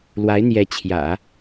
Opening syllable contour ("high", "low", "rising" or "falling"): rising